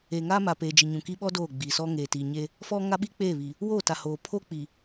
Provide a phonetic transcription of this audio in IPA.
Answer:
e˨ ŋ aː˦ m a˨ p eː˨ d͡ʒ i˨ ɲ ũ˨ k i˦ ɓ ɔ˦ d oː˦˨ ɡ͡b iː˨ s ɔ˦ ŋ eː˨ t i˨ ɲ e˦ | f ɔ˦ ŋ a˦ ɓ i˦ k͡p eː˦˨ β i˨ | w oː˦˨ t a˨ h oː˨ pʰ o˦ k͡p i˨

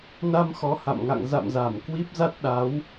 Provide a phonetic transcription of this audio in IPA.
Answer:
n a˧ m x ɔ˨˦ h a̰˧˨ m ŋ a̰˧˨ ŋ z a̰˧˨ m z a˧˩ m k w i˦˥ p̚ z a˦˥ t̚ ɗ a˨˦ w

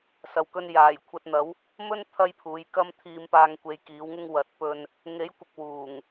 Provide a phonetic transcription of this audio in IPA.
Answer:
s ɐ˨ w k ɵ˧ n j aː˨˩ j kʷʰ ɐ˧ t̚ n̪ ɐ˨˥ w | m ɵ˥ n t̪ʰ ɐ˥ j pʰ uː˨˥ j k ɐ˥ m t̪ʰ iː˧ m p aː˧ ŋ kʷ e˨˧ j k iː˨˥ w ŋ ɪ˥ ŋ w ɐ˨ t̚ p ɵ˧ n | ŋ e˨˥ j kʷ ɪ˨ k̚ w uː˨˩ ŋ

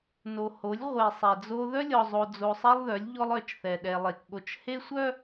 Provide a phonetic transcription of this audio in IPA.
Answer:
n o˨ h o˨˦ lʲ ʁʷ e˨ sˤ ɛ˨ d͡z o˦ ð œ˦ lʲ ɔ˨ zˤ o˨ d͡z o˨ sˤ ɛ˦ lˠ ð œ˨˦ lʲ ʎ ɔ˦ lˠ œ˦˨ t͡ʃ θ ɛ˨ ɗ ɛ˨ lˠ e˨ k ɠ o˨ t͡ʃ h e˦ sʷ œ˦

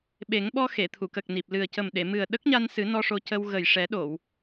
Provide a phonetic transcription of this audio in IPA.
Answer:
ɓ e˨˩˦ ŋ ɓ ɔ˧ x e˨˩˨ t̪ʰ u˨˩˨ k ə˨˩ k̚ n i˨˩ p̚ l ɨ˨˩ ə̯ c ə˨˩ m ɗ e˨˩˨ m ɨ˨˩ ə̯ ɗ ə˦˥ k̚ ɲ a˧ n s ɨ˨˩˦ n ɔ˧ ʂ o˧ c ə˧ w ɣ ə˨˩ j ʂ ɛ˨˩˦ ɗ o˨˩˨ w

